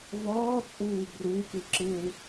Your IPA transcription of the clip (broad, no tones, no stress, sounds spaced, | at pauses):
v ɔː t͡sʼ uː b r u k ɯ ǁ ɯ w